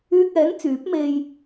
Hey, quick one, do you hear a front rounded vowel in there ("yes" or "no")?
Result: yes